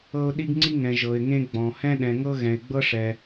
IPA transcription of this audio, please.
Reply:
ɤ˥ ʊ̯ ɗ i˥ ɡ ŋ͡ǀ i˥ ŋ ɛ̃˧ ʒ ɤ˧ ɪ̯ ŋ ẽ˥ ɡ͡b ɔ̃˧ h ɛ̃˥ ɗ ɛ̃˧ ŋ ɤ˥ ɣ ɛ̃˧ ɪ̯ ɡ͡b ɤ˥ ʂ ɛ˧

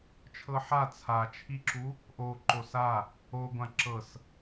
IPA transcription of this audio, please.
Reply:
t͡ʃʰ ɤ ħ a t͡sʰ a t͡ʃʰ i ǁ u | ʔ o ǃ o s a | o ɡʷ ã ǁ ɤ s

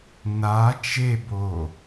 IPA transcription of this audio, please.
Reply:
n a t͡ʃ e b o

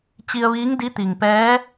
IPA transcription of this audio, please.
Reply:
t͡ɕ i˧ ə̯ ʋ iː˧˥ ŋ d i˧˥ t̪ i˩ ŋ p ɛː˧˥

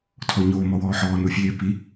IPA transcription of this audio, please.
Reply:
tʰ ɔ ɲ oː m ɔ w ɔː ħ ɔː n u fʲ eː p i

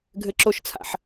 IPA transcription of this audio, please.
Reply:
ɡʱ ɘ ǁ o ʃ t͡sʰ a̰ ħ

